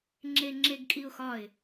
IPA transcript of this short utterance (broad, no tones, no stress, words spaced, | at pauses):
ŋ͡ǁeŋ͡ǁeɡkʼiʊ̯xɒɪ̯